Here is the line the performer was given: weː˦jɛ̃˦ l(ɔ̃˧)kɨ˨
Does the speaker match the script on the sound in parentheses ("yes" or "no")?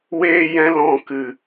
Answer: yes